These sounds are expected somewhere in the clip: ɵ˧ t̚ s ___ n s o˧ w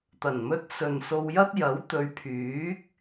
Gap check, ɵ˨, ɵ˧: ɵ˨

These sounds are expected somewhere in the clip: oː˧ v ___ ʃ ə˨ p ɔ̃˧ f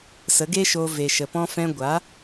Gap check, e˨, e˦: e˨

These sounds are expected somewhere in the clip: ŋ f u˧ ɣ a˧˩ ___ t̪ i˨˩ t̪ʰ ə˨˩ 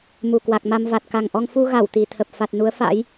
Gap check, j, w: w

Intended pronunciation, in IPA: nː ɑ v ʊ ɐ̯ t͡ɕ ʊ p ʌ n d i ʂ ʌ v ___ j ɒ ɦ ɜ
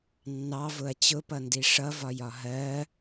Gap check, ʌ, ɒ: ɒ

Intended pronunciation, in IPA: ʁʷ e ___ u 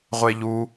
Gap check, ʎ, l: ʎ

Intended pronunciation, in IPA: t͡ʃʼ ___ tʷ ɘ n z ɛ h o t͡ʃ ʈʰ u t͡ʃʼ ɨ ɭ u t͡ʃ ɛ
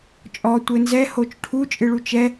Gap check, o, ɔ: ɔ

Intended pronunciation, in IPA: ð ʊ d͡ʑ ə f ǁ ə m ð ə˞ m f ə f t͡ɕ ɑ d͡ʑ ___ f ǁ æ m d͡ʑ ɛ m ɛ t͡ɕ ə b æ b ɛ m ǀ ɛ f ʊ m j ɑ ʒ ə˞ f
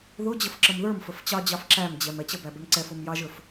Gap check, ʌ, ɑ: ɑ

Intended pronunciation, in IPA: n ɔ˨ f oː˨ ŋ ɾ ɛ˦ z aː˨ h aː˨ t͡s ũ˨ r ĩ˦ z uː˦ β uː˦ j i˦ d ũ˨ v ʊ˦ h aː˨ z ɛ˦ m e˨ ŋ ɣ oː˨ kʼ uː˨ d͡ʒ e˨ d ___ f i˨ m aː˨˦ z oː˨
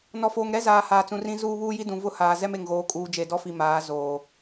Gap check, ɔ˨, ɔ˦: ɔ˦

